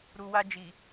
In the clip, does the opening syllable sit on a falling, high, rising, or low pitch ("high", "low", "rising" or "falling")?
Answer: low